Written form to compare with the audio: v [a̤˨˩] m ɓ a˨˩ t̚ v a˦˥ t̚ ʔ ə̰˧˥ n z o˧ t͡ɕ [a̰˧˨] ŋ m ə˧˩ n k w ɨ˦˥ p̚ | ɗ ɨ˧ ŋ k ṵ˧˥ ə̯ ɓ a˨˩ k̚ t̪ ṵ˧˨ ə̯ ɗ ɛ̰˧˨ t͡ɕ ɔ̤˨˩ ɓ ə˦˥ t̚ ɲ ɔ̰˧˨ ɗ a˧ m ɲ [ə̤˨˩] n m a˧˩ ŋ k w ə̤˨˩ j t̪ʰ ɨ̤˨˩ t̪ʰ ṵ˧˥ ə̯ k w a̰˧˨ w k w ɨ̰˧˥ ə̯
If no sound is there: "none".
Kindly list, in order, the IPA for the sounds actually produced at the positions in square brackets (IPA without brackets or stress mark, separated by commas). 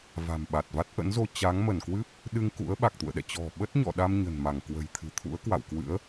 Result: a̤˨˩, a˨˦, ə̤˨˩